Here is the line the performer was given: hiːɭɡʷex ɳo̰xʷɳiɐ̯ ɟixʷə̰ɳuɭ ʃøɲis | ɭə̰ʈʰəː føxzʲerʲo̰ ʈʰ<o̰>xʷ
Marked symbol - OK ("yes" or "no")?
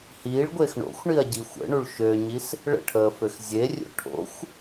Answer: yes